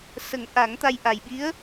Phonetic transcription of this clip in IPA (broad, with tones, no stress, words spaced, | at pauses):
sə˨˩˦ŋʔa˨˩˦ŋt̪a˧j ʔa˨˩jɓi˧˥ə̯